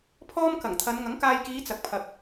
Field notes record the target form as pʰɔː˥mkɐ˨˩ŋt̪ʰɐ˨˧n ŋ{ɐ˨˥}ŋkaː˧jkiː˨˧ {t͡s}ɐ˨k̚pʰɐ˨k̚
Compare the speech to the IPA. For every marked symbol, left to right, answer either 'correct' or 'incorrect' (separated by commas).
correct, correct